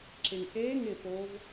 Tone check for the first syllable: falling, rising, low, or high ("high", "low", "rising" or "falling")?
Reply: low